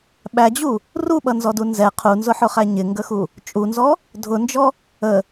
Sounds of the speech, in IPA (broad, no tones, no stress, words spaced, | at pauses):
ɓæd͡ʑu | ruɓʌnzɔdu nzɛ qʰunzʊħʊχæ ɲɪŋɡəxu | t͡ʃʼunzɔ | dʱʊnd͡ʒɔ | ə